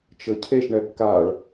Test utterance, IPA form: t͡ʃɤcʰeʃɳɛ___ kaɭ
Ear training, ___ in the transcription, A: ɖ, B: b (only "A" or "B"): B